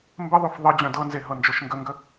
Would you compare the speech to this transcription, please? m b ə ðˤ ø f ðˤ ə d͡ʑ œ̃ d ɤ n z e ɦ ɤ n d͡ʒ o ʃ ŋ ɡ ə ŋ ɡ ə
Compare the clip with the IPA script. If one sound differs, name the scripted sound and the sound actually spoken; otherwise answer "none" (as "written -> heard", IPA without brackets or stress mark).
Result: none